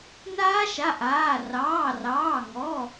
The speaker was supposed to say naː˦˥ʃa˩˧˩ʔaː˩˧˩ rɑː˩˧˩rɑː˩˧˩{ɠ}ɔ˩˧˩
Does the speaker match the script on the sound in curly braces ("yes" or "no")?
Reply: no